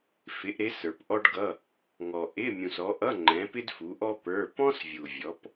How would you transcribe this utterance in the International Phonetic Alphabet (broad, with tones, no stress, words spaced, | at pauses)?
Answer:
fɪ˨˦ʔɾɪ˨˦ sə˞˨pʔɔ˥ɖɡʌ˧˥˧ | ŋɔ˨ʔɪ˧˥˧ mʲũ˨sɔ˨˦ʔʌ˧˥˧ŋ͡ǃɛ̃˨˦ pɪ˥dfu˨˦ʔɔ˥ pə˞˧˥˧ pɔ̃˥svʲu˨vʲɔ˨˦p